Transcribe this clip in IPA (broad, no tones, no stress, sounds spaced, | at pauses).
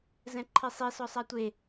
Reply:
z ɛ̃ ǃʰ i sˤ i s ɔ sˤ a tʷ e